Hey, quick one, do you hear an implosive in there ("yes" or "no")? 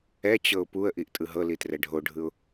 no